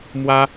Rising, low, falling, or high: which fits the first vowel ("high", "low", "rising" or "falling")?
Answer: high